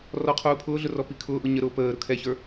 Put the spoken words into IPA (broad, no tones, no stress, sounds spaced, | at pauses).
r ɔ qʰ uː pʰ ʊː ɮ ʊ r ɔ p i kʰ ʊː ʔ ʊ ɲ ə ɾ ʊː p əː ɾ ʊ kʰ ɛ ç ə˞